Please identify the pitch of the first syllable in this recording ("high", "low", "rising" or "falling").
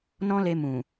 high